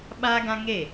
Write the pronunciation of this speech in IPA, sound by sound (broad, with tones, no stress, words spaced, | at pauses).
ɓaː˦ɡã˦ŋe˦˨